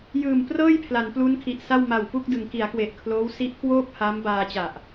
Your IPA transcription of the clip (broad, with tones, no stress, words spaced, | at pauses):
jɯː˨˩mprɤː˥˩j pʰla˩˦nplu˦˥nkʰi˨˩ʔsa˥˩w ma˨˩wpu˥˩k̚dɯ˩˦ŋ ki˩˦a̯kwe˨˩ʔkʰloː˦˥w si˦˥ʔkwoː˥˩p̚ ha˦˥m baː˧t͡ɕa˨˩ʔ